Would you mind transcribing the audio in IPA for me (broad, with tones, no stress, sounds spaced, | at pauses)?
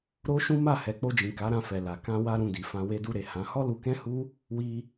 ɾ o˦ ʃ ũ˦ m a˦˨ h ɛ˨ k͡p o˧ d͡ʒ ĩ˨ k a˨˦ ɾ ã˧ f ɛ˨ l a˨ k ã˧ w a˧ ɾ ũ˧ d i˨ f ã˧ w e˧ d u˧ ɾ e˨ h ã˨˦ h ɔ˦ l u˧ k ɛ̃˦ h u˦ | w i˧